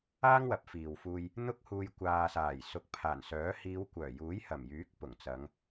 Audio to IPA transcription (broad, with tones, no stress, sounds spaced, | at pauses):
aː˥ ŋ w ɐ˨˥ p̚ f iː˨ w f uː˧ j | n̪ ʊ˥ k̚ h uː˧ j kʷ aː˨ s aː˨˩ j s ʊ˨˥ k̚ pʰ aː˨˩ n s œː˨˥ h iː˨˧ w kʷ œː˨˩ j uː˨˥ j h ɐ˨˩ m j yː˨˥ k̚ p ʊ˨˩ ŋ t͡s ɐ˨˧ ŋ